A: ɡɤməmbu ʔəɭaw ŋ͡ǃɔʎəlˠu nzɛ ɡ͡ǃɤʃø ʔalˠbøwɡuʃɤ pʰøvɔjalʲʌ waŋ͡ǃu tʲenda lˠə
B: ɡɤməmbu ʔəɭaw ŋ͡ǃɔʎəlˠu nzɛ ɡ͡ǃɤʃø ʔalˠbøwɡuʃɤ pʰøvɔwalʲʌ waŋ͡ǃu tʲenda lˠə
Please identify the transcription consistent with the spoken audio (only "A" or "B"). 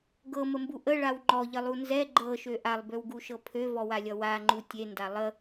B